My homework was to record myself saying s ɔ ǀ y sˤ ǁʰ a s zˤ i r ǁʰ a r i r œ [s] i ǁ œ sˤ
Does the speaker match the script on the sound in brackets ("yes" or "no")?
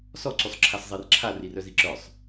no